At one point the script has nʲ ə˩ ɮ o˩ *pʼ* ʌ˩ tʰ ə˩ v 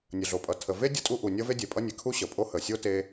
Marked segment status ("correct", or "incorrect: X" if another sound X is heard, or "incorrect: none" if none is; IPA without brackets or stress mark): correct